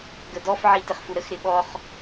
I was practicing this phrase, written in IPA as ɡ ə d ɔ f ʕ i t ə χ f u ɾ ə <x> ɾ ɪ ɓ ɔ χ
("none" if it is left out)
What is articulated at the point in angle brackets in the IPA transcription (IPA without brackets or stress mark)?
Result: x